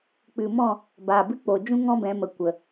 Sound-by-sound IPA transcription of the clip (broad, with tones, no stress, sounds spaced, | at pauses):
k͡p ɨ˨ m ɔ̃˦˨ | b aː˨ b ɨ˦ k͡p o˨ d͡ʒ ũ˦ ŋ ɔ̃˦ b ɛ̃˨˦ m ə˨ kʷ ə˨